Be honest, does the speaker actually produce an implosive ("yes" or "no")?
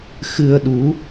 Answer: yes